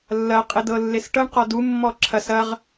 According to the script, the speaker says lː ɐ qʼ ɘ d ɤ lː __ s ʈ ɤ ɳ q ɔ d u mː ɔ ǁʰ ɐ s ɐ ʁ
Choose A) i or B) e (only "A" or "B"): B